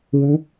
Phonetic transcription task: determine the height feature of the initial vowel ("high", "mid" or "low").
high